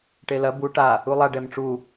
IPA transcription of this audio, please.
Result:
ʈ e l ɐ b u ʈ a | u lˠ a ɖ ɛ m ʈ͡ʂ u

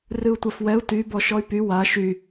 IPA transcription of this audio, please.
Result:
r ɨ u̯ tʷ a f w ɛ u̯ t y b ɔ ʃ ɔ y̯ p y w a ʃ y

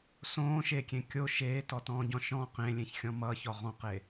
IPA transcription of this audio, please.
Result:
s õː ʃ e kʲ ẽ kʲ o ʃ eː t ɔ t ɔ̃ː ɟ ɔ̃ ʃ ɔ̃ q ẽ lʲ ẽ ç xʲ ɔ̃ m ʌː ç ɔ ʁ ɔ̃ q e

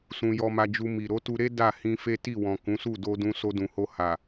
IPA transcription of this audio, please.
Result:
s ũ˧ j ɔ˧ m a˧ d͡ʒ u˧ m i˨ ɾ o˨˦ t u˧ ɾ e˦ d a˦˨ h ĩ˧ f e˦ t i˦˨ w ɔ̃˨ k ũ˨˦ s u˦˨ d o˧ d ũ˧ s o˧ d ũ˨ h o˧ h a˨

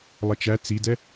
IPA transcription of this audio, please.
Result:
lˠ ʌ t͡ʃ æ t͡s i d ɛ

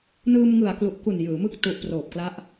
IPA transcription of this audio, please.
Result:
n ɯː˧ m ŋ ɯ˨˩ a̯ k l u˨˩ ʔ k u˨˩ n j ɯː˩˦ m ɯ˥˩ k̚ t u˨˩ ʔ p r oː˨˩ p̚ k l a˦˥ ʔ

